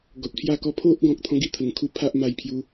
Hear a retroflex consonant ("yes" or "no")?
no